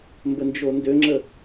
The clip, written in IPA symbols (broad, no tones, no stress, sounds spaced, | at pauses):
m b ə n d͡ʒ o n d ø ŋ͡ǁ ə